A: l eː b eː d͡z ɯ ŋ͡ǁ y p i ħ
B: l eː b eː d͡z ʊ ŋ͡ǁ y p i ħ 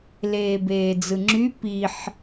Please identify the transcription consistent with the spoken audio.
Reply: A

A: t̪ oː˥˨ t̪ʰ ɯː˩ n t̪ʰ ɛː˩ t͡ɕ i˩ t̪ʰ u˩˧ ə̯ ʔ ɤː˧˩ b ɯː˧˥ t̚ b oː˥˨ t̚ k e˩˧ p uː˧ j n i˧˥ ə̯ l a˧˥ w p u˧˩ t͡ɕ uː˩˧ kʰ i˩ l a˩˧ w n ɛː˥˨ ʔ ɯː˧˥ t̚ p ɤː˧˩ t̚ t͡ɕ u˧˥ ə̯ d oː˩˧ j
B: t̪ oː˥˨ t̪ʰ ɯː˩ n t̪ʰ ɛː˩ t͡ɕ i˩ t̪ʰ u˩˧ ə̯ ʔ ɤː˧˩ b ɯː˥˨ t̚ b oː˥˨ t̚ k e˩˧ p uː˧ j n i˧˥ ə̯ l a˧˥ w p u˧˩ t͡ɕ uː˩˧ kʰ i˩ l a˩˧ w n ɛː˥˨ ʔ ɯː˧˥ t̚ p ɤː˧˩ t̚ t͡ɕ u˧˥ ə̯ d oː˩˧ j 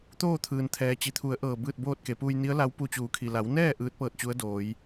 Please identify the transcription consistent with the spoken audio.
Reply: B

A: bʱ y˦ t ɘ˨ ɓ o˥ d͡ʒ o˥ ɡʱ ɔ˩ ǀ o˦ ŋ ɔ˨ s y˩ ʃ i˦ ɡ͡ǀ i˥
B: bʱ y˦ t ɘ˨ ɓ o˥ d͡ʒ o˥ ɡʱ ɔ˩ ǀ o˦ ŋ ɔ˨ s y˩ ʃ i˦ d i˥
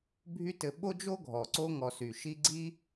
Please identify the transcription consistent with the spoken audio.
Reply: A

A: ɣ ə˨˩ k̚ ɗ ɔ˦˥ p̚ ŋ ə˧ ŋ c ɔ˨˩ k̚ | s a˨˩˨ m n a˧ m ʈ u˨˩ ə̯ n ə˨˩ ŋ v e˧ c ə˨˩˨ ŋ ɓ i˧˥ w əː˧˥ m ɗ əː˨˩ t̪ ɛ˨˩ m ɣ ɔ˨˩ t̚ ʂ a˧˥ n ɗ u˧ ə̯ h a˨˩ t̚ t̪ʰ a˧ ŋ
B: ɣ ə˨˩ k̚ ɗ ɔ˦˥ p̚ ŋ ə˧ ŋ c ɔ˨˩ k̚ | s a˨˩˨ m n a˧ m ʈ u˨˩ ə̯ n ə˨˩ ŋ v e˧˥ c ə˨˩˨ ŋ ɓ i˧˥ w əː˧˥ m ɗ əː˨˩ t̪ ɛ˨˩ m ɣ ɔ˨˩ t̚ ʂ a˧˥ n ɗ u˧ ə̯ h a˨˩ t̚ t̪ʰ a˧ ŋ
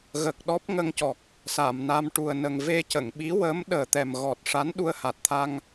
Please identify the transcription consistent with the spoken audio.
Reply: A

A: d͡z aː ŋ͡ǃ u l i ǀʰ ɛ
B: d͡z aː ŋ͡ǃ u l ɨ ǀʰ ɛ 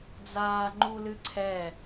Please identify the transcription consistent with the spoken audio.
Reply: B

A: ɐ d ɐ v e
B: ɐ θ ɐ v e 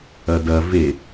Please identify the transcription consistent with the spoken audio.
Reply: A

